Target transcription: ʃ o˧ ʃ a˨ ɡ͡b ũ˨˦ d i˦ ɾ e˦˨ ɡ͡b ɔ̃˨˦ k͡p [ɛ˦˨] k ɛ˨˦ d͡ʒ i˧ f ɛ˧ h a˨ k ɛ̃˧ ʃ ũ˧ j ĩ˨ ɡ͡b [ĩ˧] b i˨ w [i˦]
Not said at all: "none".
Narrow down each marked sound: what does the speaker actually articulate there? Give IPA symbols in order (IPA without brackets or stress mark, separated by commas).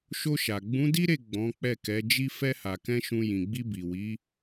ɛ˦˨, i˧, i˨˦